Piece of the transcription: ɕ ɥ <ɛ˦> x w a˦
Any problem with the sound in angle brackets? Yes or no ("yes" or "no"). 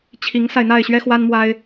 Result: no